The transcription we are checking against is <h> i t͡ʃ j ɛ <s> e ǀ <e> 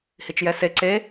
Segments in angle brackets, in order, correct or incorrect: correct, correct, correct

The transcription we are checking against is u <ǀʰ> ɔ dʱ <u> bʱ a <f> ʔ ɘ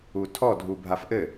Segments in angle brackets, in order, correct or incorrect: incorrect: tʰ, correct, correct

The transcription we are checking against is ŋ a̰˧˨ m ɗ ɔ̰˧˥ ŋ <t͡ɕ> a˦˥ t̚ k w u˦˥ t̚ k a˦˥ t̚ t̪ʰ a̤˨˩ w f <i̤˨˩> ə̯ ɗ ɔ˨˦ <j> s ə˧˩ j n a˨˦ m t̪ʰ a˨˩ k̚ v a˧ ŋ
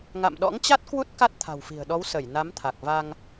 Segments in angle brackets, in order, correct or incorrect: correct, correct, incorrect: w

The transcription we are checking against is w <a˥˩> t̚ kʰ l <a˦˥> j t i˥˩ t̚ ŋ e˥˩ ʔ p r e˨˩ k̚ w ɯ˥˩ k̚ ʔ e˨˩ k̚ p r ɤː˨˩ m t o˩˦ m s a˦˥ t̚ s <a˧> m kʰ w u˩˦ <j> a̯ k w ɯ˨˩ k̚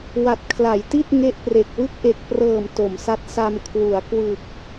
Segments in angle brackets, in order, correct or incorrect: incorrect: a˨˩, incorrect: a˩˦, correct, incorrect: none

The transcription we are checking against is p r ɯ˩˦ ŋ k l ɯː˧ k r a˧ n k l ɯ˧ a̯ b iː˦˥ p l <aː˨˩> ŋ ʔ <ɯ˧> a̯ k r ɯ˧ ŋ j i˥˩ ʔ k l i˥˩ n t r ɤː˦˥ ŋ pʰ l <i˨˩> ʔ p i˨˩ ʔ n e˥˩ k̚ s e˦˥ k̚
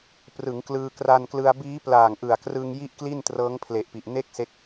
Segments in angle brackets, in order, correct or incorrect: correct, incorrect: ɯ˨˩, incorrect: e˨˩

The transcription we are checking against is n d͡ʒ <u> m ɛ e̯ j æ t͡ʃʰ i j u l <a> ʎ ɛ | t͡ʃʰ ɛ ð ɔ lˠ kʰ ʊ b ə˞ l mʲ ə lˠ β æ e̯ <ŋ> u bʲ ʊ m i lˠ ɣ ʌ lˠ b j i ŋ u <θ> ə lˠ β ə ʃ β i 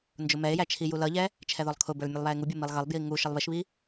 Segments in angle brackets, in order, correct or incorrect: incorrect: ʊ, incorrect: ʌ, correct, incorrect: ʃ

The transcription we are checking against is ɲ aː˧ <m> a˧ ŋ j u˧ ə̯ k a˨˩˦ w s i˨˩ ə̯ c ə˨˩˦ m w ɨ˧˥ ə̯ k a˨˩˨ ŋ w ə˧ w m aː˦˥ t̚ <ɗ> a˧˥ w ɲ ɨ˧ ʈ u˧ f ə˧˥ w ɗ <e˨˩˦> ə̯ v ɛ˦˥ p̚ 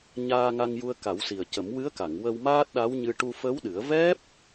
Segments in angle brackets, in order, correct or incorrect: incorrect: ŋ, correct, incorrect: ɨ˨˩˦

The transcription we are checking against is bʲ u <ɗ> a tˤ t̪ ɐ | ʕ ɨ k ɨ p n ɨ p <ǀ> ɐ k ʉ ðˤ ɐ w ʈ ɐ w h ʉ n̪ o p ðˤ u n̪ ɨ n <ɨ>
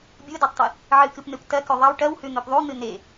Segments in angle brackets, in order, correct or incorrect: incorrect: d, incorrect: t, incorrect: e

